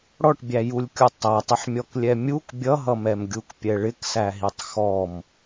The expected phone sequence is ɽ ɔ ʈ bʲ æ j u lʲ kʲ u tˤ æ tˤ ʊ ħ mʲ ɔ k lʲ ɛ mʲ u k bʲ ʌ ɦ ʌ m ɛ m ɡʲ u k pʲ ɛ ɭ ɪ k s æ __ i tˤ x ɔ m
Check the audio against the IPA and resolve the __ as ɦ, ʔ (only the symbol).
ɦ